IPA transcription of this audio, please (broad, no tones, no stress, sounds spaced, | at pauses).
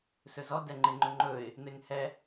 s ɵ z ɔ d ɛ ŋ͡ǃ e ŋ͡ǃ ɵ ŋ͡ǃ ɵ ɪ̯ | n̪ e ŋ h ɛ